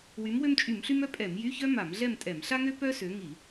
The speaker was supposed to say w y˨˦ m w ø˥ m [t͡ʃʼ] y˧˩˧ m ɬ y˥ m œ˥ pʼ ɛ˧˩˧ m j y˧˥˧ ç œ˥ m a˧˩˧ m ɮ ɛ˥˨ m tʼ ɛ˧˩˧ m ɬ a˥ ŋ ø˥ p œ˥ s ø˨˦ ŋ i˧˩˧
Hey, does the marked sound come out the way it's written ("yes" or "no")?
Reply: yes